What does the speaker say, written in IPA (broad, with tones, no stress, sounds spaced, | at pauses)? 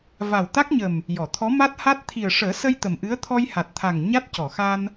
v a˨˩ w t̪ a˦˥ k̚ ɲ ə˨˩ m | j ɔ˨˩˨ t̪ʰ ɔ˧˥ m a˦˥ t̚ h a˦˥ t̚ t̪ʰ i˨˩ ə̯ ʂ əː˨˩˦ s ə˧ j t̪ ə˨˩ m ʔ ɨ˧˥ ə̯ t̪ʰ ɔ˧ j h a˨˩ t̚ t̪ʰ a˨˩ ŋ ɲ a˦˥ t̚ c ɔ˨˩˨ x a˧ n